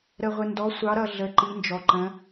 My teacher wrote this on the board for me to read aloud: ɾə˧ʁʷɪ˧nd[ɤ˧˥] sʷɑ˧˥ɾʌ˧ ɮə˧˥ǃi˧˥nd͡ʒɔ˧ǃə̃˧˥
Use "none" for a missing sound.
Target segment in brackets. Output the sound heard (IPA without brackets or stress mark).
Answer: ɔ˧˥